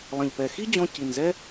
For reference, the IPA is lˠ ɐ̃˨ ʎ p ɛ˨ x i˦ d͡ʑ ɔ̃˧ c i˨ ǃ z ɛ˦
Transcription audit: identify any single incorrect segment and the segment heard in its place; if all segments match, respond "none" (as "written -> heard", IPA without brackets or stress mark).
ǃ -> n